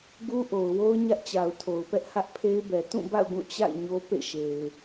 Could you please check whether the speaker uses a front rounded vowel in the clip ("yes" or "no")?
no